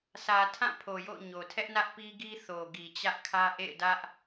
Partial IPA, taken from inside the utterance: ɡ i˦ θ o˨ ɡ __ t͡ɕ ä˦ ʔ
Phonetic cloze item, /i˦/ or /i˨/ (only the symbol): i˨